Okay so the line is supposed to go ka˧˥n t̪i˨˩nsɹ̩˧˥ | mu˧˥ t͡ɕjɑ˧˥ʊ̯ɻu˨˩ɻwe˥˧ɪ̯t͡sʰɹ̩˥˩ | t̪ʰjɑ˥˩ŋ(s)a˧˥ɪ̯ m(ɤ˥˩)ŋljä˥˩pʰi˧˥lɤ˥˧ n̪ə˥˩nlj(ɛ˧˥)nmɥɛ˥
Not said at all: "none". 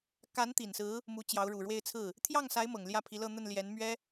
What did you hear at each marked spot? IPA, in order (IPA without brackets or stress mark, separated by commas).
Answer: s, ɤ˨˩, ɛ˧˥